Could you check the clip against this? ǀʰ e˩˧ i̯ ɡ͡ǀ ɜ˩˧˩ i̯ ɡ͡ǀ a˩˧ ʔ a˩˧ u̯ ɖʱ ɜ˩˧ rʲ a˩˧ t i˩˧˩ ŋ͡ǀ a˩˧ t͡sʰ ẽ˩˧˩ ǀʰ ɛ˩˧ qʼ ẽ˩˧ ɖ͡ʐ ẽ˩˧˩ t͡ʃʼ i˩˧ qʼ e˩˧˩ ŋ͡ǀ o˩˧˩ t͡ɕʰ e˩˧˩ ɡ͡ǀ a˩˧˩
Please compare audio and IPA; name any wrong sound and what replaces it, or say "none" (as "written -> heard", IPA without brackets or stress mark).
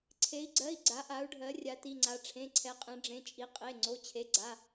t͡sʰ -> ʈ͡ʂʰ